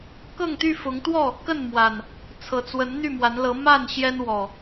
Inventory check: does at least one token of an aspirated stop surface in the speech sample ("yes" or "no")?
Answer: yes